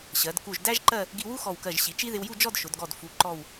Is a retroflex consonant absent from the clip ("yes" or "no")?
yes